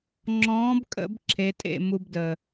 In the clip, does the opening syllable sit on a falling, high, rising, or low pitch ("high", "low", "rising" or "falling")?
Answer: rising